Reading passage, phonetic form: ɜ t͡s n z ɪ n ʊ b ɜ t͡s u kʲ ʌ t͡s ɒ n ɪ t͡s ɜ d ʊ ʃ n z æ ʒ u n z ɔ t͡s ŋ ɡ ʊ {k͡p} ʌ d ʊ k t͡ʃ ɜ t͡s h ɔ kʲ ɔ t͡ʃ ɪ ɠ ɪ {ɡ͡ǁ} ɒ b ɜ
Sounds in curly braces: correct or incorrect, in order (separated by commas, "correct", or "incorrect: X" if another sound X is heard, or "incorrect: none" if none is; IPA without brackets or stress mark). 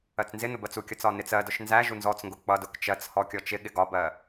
correct, incorrect: ɡ